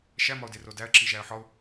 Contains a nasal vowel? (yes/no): no